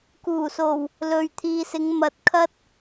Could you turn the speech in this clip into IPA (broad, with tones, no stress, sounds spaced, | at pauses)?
k uː˨˩ s o˨˩ w | l ɵ˨ ɥ t̪ʰ iː˨ s ɪ˨˧ ŋ m ɐ˧ t̚ kʰ ɐ˥ t̚